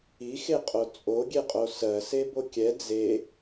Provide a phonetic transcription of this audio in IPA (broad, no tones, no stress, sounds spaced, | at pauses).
i x e qʼ o t͡sʼ o ɡʲ e qʼ o s ɜ s e b o kʲ ɛ d͡z e